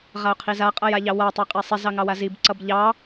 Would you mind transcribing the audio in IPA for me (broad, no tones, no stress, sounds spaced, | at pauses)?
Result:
ʁ a ʊ̯ qʰ i z a qʼ ʌ j a ʎ ɑ w a tˤ ɑ qʼ e sˤ i z ɑ ŋ ɑ w a z i b ǀ ʌ b ʎ ɑ